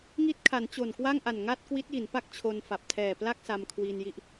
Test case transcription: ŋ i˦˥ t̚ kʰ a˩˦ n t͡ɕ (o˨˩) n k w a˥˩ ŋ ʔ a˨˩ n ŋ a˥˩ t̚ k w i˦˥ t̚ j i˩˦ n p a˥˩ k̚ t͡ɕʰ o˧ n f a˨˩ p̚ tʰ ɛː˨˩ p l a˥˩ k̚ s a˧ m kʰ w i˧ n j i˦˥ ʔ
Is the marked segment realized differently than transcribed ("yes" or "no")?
no